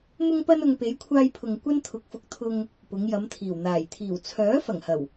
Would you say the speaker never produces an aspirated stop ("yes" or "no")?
no